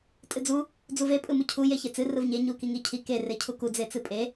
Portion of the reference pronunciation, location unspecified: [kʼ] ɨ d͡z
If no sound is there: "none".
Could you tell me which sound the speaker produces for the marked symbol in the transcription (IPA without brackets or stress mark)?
tʼ